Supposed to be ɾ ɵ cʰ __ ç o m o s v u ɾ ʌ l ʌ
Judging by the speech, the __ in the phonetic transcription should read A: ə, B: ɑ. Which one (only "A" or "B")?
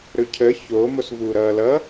A